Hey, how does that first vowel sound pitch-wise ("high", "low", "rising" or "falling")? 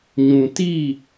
low